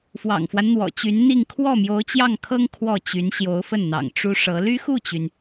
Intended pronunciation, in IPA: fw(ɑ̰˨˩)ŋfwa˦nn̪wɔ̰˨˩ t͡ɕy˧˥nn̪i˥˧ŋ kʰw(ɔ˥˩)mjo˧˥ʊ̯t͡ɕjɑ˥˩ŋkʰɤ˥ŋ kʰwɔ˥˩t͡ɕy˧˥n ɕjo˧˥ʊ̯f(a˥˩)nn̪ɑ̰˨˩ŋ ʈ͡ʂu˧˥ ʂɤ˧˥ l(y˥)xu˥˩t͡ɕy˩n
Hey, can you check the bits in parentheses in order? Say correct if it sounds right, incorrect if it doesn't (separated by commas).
correct, correct, incorrect, correct